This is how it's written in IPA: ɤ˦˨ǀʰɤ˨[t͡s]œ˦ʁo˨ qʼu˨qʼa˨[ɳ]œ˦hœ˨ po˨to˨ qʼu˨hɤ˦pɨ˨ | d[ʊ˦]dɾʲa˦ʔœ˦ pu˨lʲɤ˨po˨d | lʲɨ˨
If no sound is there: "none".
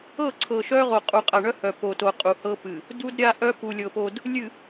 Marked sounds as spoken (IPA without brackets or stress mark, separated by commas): ʃ, ɳ, u˦